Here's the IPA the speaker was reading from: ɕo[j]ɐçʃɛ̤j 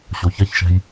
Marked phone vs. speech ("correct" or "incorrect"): incorrect